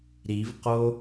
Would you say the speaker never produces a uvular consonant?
no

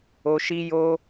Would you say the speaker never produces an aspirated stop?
yes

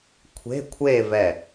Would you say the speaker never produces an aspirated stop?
no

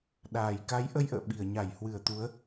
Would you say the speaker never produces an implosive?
no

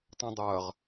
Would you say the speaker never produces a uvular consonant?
no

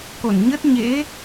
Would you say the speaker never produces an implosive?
yes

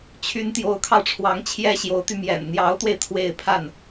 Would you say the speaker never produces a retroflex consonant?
no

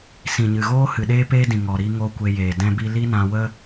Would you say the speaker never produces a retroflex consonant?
yes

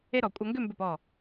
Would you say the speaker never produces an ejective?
no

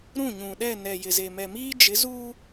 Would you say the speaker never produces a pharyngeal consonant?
yes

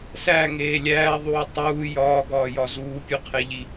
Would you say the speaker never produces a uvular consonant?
no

